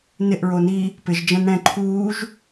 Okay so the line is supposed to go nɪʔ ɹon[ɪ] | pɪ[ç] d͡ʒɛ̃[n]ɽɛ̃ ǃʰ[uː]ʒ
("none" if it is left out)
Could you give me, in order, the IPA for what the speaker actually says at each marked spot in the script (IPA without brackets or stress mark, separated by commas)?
i, ʒ, n, uː